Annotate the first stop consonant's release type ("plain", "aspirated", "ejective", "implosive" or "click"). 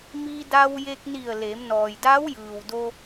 plain